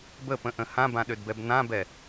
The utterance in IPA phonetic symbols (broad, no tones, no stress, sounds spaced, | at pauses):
b ə p ə̃ ʔ ə̃ h ã b ã ɗ ø d b ɛ b n ã b ɛ